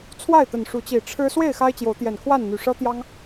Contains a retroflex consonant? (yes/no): yes